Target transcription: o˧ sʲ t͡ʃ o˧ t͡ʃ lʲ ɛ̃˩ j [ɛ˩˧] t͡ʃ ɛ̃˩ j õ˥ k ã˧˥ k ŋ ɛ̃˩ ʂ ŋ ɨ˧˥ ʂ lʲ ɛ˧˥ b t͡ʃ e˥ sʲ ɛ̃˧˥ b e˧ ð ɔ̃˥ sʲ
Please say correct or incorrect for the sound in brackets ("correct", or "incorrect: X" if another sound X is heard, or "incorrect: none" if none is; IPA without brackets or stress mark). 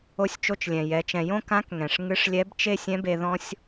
correct